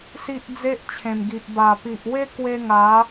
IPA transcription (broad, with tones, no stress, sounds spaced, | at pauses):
s i˦ ʔ d͡z e˦ ʔ t͡ɕʰ ẽ˨˩ m ɡ i˨ ʔ b a˨˩ p i˨ ʔ w e˦ k w e˧ ŋ a˨˦